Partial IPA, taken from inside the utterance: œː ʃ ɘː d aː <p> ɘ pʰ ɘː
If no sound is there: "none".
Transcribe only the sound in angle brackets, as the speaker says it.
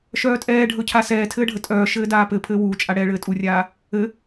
p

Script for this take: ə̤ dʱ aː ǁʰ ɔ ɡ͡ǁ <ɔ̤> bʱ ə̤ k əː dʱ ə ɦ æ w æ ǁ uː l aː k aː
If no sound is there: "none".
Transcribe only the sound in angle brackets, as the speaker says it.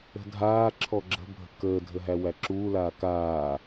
ə̤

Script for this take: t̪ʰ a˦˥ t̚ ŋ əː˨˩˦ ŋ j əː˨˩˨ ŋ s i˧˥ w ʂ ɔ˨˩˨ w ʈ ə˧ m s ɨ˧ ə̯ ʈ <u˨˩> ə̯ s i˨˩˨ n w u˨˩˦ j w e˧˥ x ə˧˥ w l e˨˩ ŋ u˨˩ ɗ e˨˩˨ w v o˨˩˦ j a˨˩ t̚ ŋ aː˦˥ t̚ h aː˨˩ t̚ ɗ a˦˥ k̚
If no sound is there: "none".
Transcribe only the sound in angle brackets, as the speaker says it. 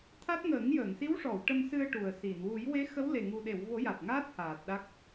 u˨˩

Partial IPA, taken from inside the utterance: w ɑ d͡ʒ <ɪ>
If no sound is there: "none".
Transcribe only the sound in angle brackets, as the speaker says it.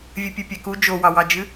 ɨ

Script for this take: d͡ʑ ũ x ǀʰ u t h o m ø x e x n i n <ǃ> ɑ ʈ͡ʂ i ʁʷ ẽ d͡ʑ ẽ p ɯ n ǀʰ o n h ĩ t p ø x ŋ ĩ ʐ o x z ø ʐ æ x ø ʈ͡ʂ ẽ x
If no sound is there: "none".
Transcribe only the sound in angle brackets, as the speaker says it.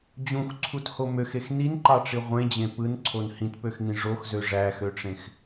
ǃ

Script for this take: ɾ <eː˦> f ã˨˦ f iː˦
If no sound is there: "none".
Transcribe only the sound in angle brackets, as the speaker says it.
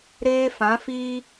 eː˦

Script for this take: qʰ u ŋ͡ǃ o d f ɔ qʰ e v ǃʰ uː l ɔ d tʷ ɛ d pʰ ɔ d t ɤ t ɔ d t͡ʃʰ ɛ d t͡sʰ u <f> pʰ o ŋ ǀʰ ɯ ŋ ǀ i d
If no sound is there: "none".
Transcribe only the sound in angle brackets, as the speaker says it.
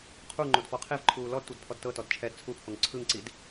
none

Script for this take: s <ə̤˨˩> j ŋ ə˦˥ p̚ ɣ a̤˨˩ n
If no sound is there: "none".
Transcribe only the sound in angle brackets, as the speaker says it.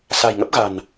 a̤˨˩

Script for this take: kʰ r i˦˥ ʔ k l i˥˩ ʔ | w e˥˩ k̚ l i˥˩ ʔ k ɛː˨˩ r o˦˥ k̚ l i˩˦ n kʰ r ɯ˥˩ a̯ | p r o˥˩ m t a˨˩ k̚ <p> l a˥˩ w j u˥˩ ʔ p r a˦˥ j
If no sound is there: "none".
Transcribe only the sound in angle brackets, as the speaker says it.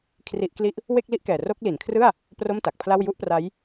pʰ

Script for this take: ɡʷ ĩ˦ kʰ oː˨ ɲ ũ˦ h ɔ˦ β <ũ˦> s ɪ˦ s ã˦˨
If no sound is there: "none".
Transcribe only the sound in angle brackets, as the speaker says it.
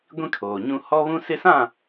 ũ˦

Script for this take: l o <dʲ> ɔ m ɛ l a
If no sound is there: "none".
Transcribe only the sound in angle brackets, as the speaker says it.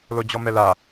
d͡ʑ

